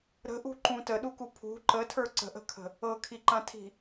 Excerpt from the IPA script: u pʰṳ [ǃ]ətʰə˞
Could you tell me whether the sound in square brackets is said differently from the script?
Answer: no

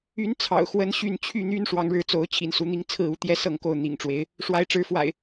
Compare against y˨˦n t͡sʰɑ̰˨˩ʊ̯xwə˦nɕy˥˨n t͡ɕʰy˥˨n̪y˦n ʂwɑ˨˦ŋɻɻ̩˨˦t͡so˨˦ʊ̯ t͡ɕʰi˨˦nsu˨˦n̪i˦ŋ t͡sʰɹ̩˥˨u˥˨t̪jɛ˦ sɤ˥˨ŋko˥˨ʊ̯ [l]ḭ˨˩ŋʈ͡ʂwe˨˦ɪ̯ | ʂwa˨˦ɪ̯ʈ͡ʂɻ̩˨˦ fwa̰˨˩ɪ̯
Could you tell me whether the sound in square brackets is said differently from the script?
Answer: yes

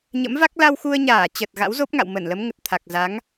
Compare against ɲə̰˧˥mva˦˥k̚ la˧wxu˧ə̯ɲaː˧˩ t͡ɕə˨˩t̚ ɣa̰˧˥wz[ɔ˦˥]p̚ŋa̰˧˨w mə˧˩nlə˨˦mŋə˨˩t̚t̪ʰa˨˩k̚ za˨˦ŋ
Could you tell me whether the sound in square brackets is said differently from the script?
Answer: yes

